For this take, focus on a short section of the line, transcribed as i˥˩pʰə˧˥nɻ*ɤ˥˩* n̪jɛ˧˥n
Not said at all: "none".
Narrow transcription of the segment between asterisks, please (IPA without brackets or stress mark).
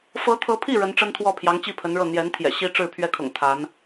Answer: ɤ˥˩